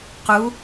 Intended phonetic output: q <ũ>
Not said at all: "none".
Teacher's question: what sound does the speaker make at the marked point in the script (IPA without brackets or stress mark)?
u